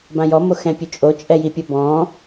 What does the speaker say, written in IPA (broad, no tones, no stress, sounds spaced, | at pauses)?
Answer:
b ã j ɔ m o x ɛ̃ pʲ ø t͡ʃʼ o t͡ʃʼ ɛ j i pʲ ʊ b ɔ̃